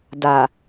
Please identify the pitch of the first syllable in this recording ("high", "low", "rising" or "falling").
low